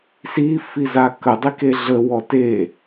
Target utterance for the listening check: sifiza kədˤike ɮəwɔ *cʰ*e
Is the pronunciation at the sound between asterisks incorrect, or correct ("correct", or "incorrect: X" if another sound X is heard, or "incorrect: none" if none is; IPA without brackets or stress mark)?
incorrect: t